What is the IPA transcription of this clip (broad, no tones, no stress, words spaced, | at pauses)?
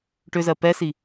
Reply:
ʈʏzɜ pɛsi